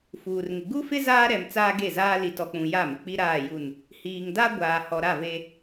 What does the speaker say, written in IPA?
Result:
fuː˨rŋɪ˨ ɡu˦fɪ˦ zaː˦ɾɛ˨m t͡saː˦ɡe˦˨zaː˦ li˨tɔ˨k͡pũ˨ ja˦˨mɪ˨ k͡pi˦ɾaː˦˨ju˦˨n | hiː˨ŋda˦ ɡʷaː˨hɔ˨ɾa˦˨ve˦

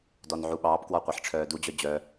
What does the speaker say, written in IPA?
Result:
dɔnʕuɓɑːpkwɔ qʷeħʈ͡ʂʰœːdud͡ʑœ d͡ʑœ

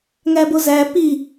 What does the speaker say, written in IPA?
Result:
ŋæbozæ pi

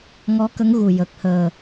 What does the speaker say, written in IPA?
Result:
ŋɔ˧˥kə˧˥ŋ ɣu˨˩ jə˨˩k̚həː˨˩

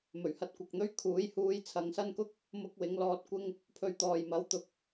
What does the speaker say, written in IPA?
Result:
mɵ˨˩ɥhɐ˧t̚kʷɐ˨k̚n̪ɵ˥ɥ kʰuː˨˥jhuː˧j t͡sʰɐ˨˧ŋsɐ˥nkʊ˥k̚ | mʊ˥k̚wɪ˨˥ŋ lɔː˧t̚ kʷɪ˧ŋ | pʰɵ˧ɥt̪ɔː˨j mɐ˨˥w t̪ʊ˨k̚

